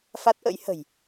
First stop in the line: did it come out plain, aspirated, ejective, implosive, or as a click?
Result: plain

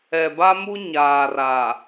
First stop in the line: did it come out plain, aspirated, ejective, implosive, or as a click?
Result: plain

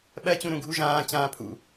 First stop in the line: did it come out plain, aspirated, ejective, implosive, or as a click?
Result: implosive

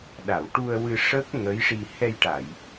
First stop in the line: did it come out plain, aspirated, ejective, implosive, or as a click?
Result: implosive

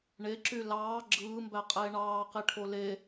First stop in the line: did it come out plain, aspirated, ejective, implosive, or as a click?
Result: click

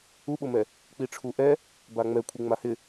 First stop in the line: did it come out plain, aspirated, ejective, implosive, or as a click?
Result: implosive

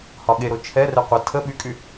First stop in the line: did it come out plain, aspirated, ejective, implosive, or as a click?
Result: implosive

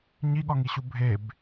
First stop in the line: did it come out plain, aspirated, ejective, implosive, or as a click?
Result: implosive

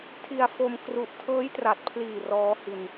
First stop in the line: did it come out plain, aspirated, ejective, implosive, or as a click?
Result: aspirated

